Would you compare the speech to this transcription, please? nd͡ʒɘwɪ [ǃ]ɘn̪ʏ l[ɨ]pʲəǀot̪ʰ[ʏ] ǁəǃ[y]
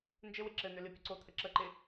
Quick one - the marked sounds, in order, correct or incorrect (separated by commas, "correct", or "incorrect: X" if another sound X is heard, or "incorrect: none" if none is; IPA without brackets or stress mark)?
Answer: incorrect: ǁ, correct, incorrect: ə, incorrect: ɪ